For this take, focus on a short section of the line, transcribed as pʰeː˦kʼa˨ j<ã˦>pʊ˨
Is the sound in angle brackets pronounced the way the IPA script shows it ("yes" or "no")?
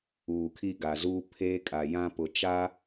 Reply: yes